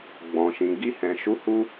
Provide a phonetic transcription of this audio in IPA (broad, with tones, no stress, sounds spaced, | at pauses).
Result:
ɡ͡b ɔ̃˨ ʃ ĩ˨ ɡ i˧ h ɛ̃˨ ʃ u˨˦ h u˧